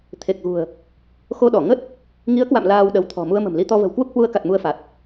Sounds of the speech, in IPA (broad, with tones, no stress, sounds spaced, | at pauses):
t̪ʰ e˨˩ k̚ ɣ ṳ˨˩ ə̯ | x o˧ ɗ ɔ˧˩ ŋ ə˦˥ t̚ | ŋ i˨˦ ə̯ k w a̰˧˨ m l aː˧ w ɗ ə˨˦ w t̪ʰ ɔ̤˨˩ m u˧ ə̯ m ə̤˨˩ m l i˧ t̪ ɔ˧ v ə̤˨˩ w k w u˦˥ k̚ h w u˧ ə̯ k a˨˩ t̚ m u˧ ə̯ f a˨˩ t̚